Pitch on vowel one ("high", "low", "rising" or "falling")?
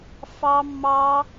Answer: high